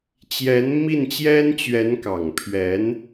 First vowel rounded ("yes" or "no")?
no